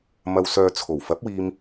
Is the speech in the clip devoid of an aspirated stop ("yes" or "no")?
no